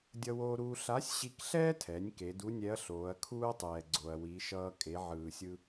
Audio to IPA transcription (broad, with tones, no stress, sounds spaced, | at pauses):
dʲ ʌ˧ w oː˧ ɾ uː˧ ɬ a˧˥ sʲ ɕ i˧ k ɬ ɛː˥ tʰ ɛ˩˧ nʲ k e˩˧ d u˧˥ nʲ ɛ˧˥ ɐ̯ ɬ oː˩˧ ɐ̯ kʰ uː˥ ɐ̯ tˤ ɛː˩ ɡ͡ǀ o˩ ɐ̯ w i˩˧ ʃ ʌː˧ kʼ e˩˧ ʕ ɯː˩ sʲ ɯ˧